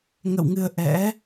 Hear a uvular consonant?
no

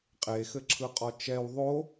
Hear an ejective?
yes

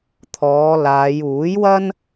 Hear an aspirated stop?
yes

